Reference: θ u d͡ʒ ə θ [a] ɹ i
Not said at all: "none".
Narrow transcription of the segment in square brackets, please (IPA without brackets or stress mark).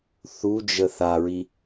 a